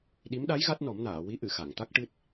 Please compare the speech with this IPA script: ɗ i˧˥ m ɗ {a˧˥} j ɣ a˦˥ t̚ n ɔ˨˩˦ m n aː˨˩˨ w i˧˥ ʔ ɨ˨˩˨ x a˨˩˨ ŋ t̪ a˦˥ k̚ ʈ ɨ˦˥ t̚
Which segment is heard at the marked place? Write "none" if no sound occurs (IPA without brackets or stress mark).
a˧˥